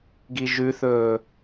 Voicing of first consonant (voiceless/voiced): voiced